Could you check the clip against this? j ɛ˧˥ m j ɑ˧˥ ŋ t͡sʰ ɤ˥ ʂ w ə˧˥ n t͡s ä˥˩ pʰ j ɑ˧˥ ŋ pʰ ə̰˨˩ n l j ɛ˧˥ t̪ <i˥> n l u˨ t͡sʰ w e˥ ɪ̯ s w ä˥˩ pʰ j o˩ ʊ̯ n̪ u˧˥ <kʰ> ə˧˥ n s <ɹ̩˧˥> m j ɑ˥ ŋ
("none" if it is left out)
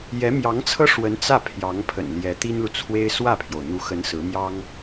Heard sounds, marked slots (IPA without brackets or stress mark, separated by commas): i˥, x, ɹ̩˧˥